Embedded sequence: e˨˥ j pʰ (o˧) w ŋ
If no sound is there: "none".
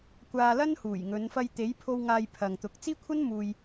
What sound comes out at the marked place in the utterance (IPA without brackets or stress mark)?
o˧